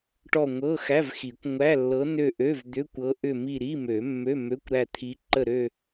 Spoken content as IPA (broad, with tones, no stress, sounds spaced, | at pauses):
ʈ ɔ˦˨ ŋʷ ɤ˧˥˧ x æ˧˥˧ v x i˨˩˦ kʷ ŋʷ æ˧˥˧ lː ɤ˧˥ n ø˦˨ ʔ ø˧˥˧ v d̪ ʏ˧˥˧ kʷ ɤ˧˥ ʔ ʏ˦˨ m i˦˨ ɾ i˧˥˧ m ø˨˩˦ mː ø˧˥˧ m ø˧˥˧ kʷ ɾ æ˦˨ t̪ʰ i˧˥ ǃ ə˦˨ ɾ ø˦˨